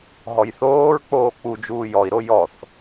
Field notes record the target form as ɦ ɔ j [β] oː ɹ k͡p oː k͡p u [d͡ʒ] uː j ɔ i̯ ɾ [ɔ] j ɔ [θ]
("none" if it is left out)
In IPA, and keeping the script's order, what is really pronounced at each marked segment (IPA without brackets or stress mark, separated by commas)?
θ, d͡ʒ, o, θ